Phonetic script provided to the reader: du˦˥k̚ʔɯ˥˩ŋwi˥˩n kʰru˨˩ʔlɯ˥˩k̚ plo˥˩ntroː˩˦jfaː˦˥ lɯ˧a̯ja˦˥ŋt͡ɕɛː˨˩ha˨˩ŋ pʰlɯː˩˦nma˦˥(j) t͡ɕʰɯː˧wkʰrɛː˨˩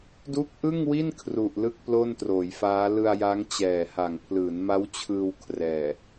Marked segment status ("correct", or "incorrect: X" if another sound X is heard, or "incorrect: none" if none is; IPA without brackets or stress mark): incorrect: w